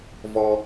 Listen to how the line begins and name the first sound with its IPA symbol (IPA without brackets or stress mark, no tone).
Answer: v